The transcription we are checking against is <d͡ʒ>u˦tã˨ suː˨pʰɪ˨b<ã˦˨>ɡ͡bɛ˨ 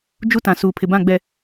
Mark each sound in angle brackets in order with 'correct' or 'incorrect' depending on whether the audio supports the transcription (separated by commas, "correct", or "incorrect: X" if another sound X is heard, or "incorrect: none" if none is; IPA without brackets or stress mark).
correct, correct